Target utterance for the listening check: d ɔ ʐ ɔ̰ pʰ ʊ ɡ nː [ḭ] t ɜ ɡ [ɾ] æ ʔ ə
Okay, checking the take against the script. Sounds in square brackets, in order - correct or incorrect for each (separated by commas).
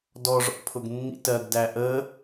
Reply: correct, incorrect